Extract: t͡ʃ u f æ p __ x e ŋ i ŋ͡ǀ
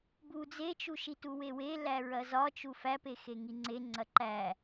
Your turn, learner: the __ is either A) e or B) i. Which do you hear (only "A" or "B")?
A